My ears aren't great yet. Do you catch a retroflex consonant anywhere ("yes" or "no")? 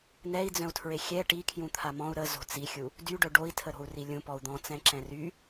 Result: yes